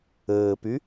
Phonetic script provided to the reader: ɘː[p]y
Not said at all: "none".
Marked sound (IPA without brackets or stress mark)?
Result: p